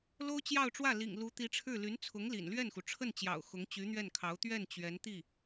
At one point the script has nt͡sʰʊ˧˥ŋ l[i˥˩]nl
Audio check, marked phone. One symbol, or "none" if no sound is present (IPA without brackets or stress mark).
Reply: ḭ˨˩